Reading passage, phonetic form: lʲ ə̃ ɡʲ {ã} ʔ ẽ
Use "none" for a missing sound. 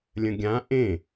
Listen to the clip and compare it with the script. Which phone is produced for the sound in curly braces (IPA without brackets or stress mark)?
ã